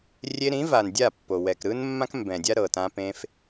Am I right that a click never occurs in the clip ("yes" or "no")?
yes